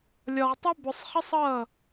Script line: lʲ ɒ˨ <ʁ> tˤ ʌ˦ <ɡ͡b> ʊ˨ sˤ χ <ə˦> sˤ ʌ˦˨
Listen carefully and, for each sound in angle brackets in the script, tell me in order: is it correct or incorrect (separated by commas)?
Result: correct, incorrect, correct